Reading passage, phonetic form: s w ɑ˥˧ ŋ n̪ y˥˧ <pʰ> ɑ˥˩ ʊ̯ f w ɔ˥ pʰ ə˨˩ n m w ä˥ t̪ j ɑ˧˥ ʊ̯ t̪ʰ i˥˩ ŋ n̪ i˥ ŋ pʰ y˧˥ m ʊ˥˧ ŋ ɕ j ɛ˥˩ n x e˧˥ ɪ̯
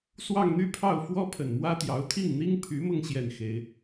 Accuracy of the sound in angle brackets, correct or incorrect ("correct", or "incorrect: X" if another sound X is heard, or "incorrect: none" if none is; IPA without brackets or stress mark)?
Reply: correct